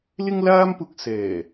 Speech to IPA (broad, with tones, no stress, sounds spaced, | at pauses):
l ɪ˥ ŋ l aː˥ m p ʊ˧ k̚ s ɛː˨˩